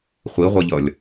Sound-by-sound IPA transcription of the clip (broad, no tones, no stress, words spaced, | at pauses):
χʷiʁʷʌʎʌlʲ